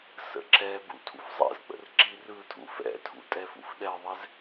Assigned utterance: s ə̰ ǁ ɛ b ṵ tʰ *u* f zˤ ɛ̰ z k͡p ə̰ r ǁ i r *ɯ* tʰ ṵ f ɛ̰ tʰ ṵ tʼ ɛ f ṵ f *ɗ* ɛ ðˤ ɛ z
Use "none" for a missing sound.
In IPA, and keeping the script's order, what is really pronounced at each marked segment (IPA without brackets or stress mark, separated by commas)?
ṵ, ɯ, ɗ